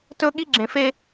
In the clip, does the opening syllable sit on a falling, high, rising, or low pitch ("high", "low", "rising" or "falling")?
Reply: high